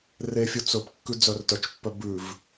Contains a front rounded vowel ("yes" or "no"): yes